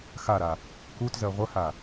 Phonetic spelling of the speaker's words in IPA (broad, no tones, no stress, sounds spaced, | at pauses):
x a ɾ a | k u t z ɜ ʁʷ ə h a